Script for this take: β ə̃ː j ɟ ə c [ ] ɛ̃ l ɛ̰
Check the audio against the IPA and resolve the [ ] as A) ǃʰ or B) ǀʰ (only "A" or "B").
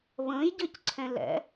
B